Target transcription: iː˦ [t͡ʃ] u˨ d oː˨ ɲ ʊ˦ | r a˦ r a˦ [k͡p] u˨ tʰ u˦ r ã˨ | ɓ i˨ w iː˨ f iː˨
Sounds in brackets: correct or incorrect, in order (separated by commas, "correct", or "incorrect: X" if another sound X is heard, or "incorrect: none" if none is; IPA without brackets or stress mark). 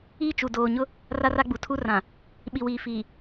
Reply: correct, incorrect: ɡ͡b